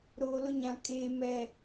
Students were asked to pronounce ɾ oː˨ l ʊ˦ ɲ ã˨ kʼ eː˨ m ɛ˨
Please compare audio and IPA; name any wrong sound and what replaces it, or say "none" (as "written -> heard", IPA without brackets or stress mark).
none